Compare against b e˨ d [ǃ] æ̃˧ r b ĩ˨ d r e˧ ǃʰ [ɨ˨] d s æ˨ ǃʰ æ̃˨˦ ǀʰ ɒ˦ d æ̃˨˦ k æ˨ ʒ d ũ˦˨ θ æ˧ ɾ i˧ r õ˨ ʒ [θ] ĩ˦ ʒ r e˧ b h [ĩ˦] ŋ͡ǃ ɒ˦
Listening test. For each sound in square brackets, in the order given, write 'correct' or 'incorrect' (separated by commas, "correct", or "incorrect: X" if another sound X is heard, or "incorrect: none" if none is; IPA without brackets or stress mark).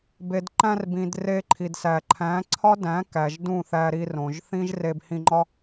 correct, incorrect: i˨, correct, incorrect: ĩ˧